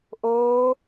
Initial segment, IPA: ʔ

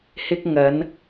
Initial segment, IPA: h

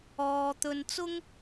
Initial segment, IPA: ɔː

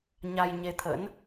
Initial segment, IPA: ɲ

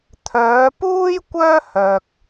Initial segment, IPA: t̪ʰ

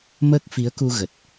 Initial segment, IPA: m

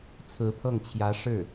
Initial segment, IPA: t͡sʰ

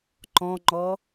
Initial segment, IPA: ǃ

